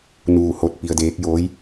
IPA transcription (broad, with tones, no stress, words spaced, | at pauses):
nuː˥˨ ho˧˥t̚ pi˧ə̯deː˧˥k̚ joː˧˥j